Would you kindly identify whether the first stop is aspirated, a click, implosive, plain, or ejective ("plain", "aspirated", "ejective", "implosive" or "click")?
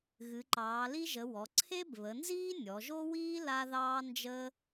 click